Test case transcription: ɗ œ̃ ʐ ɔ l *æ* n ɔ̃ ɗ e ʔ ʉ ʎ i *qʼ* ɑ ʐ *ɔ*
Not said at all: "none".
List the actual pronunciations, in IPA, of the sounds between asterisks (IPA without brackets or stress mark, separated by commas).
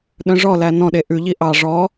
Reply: æ, ʔ, ɔ